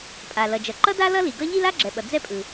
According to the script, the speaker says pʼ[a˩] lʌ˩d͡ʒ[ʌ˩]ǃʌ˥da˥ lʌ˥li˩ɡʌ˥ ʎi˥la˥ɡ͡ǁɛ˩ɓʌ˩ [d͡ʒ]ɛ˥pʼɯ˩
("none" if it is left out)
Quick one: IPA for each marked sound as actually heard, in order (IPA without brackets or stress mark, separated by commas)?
a˩, ʌ˩, d͡z